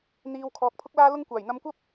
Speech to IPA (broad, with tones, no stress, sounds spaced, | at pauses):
n̪ iː˨ w kʰ ɔː˨˥ k̚ pʰ ʊ˥ k̚ l aː˥ l ʊ˥ ŋ kʷ aː˨˩ j n̪ ɐ˧ m kʷ ɐ˥ p̚